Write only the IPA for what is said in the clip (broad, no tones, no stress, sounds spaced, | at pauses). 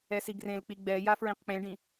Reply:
ɛ s i ɡ r ẽ l k͡p i ɡ͡b ɛ j a f ɹ ĩ q k͡p ẽ ɖ ĩ